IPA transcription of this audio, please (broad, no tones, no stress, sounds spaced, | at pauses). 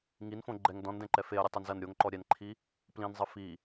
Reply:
ŋ i n f õ ɡ͡ǃ ɛ ŋ d ɔ̃ n d ɛ̃ ǃ ɛ f e ɐ̯ ɾʲ u tˤ e n z ɐ n ɾʲ o ŋ ǃ ɔ ɾʲ ɛ n ǃʰ i | p l ĩ n zˤ ɨ f i